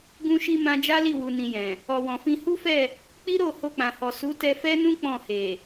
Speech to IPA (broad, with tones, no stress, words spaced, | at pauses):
ɡũ˧ʃi˧ mã˧d͡ʒa˦li˦˨ wu˧nĩ˧jɛ̃˨ | ɔ˨wɔ̃˨fĩ˧ hu˦fɛ˦˨ | k͡pi˦ɾo˦˨ ho˧k͡pã˨hɔ˨ su˨˦tɛ˧fɛ˦nũ˦ k͡pɔ̃˦˨he˨